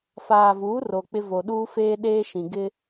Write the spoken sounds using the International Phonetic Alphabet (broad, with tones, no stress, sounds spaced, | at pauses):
f aː˨ v uː˨˦ r o˨ k͡p ɪ˦ v o˨ ɗ uː˦ f eː˦ ɗ eː˦ ʃ ĩ˨ ɡ ɪ˦